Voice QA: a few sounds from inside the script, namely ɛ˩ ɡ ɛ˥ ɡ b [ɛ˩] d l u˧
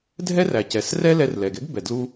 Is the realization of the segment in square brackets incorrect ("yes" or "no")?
no